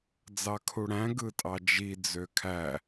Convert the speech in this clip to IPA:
d͡z ɑ kʰ u ɽ æ̃ ɡ ɯ tʼ ɑ d͡ʒ i d͡z ø kʰ æ

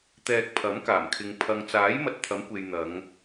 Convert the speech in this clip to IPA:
t̪ ɛː˧ k̚ pʰ ɐ˨˥ m k aː˨˩ m kʰ ɪ˨ ŋ pʰ ɐ˨ ŋ t͡s aː˨˥ j m ɐ˧ t̚ t̪ʰ ɐ˨˥ m kʷ e˨ j n̪ ɐ˨˧ ŋ

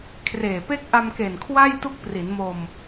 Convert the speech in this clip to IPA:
kʰ r eː˨˩ p e˦˥ k̚ ʔ a˧ m k e˨˩ n kʰ w a˥˩ j t u˦˥ k̚ p r i˩˦ n m o˧ m

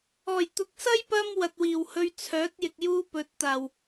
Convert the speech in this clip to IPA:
ɔː˨˩ j t̪ ʊ˨ k̚ s ɐ˥ j p ɐ˧ m w ɐ˨ t̚ w iː˨˩ w h ɵ˧ ɥ t͡sʰ œː˨˥ t̚ j ɪ˨ k̚ j uː˥ p ɵ˨˥ t̚ t̪ aː˨˩ w

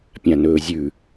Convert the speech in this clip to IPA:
pʲ ã n ɵː zʲ ʉ

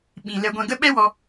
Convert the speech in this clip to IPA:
ɓ ĩ˨ l ɛ˧ ɡʷ ɛ̃˧ ɡ ə˦ ɓ ɛ˦ w ɔ˧

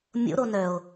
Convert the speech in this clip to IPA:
mʲ o̰ ɾ o n œ o̯

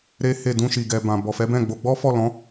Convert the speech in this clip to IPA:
ɾ e˦ h e˦˨ d ũ˧ ʃ i˨ ɡ ɛ˨ b ã˨ b ɔ˨ f ɛ˨˦ b ɛ̃˦˨ ɡ͡b o˧ ɡ͡b ɔ˦ f ɔ˦˨ l ɔ̃˨˦

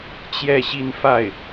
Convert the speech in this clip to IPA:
t͡ɕ j ɛ˥˧ ɕ i˥˧ n f a˥˩ ɪ̯

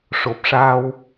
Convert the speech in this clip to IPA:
ʂ o˨˩ p̚ ʂ aː˧ w

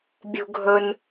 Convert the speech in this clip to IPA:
bʲ ṳ˦ ɡʱ ɵ˦ n

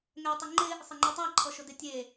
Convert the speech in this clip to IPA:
ŋ ɛ ʊ̯ tˤ ɪ ŋ͡ǃ ɪ | sˤ ɪ ŋ͡ǃ u tˤ a ǃʰ ɔ ʃ ʊ d ɪ tʲ e

